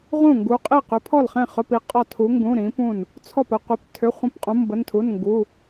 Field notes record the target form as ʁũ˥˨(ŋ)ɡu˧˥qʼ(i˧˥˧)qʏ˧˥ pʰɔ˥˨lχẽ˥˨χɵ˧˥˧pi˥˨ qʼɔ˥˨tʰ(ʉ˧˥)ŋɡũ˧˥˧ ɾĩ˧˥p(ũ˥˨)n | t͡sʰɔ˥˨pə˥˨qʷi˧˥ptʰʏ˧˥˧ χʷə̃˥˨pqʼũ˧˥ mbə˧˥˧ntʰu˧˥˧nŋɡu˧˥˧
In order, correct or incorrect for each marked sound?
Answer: correct, incorrect: i˥˨, incorrect: u˧˥, correct

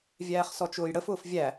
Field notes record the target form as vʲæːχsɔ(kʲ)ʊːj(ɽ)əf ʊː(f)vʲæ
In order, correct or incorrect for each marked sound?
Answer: incorrect: t͡ʃ, correct, correct

